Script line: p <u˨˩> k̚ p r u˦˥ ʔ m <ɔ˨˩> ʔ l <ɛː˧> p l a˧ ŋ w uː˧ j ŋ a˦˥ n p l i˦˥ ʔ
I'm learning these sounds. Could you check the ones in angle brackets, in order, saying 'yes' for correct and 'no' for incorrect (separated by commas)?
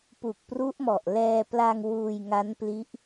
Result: yes, yes, yes